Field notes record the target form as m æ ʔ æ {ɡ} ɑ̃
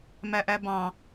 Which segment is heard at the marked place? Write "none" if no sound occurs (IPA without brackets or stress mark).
b